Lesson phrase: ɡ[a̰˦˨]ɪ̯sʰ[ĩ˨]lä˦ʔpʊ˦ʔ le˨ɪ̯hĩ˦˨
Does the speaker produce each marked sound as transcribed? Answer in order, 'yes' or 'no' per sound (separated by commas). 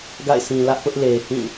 yes, yes